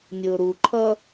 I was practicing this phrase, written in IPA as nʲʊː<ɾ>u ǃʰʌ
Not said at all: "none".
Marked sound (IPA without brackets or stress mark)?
ɾ